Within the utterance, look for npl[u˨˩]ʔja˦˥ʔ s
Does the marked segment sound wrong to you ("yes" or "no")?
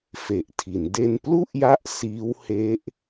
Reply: yes